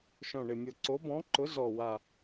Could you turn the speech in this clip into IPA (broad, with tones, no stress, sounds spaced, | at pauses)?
ʃ ɔ̃˨˩ ɳ ɪ˨˩ mʲ o˨˩ ǀ o˨˥ b ɔ̃˨˥ ǃ ʊ˨˥ z ɔ˨˩ w a˨˩